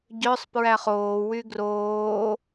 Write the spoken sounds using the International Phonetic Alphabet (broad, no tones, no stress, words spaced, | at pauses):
ɟœsˤ pɹæχoː wyɡroː